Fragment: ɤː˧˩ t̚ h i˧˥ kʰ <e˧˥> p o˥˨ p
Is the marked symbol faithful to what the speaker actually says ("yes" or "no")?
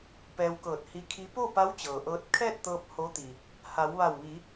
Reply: no